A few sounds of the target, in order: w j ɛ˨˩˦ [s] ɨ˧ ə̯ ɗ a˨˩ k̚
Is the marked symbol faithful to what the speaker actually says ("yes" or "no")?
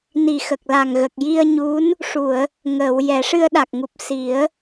no